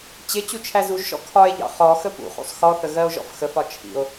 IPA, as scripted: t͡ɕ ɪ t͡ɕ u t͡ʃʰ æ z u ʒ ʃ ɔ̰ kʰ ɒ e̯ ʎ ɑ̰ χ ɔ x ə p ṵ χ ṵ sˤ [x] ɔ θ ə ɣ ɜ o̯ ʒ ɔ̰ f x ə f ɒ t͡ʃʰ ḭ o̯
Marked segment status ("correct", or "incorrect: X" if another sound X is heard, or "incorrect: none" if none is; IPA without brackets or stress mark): correct